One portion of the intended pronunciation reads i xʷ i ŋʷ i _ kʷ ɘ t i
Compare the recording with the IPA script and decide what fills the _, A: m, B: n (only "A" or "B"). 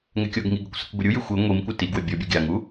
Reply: A